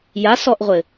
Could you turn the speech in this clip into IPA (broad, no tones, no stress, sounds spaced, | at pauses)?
j a s ɔ ʔ ʁʷ ɘ